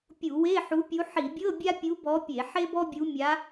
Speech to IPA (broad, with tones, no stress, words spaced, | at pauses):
pʲu˧˩˧we˧˥˧ ħu˧˥pʲu˧˥ ħi˧˩˧bʲɤ˧˥˧ bʲa˥pʲu˧˥bɔ˧˥pʲe˧˩˧ ħe˥bɔ˥bʲu˧˥ mʲa˧˥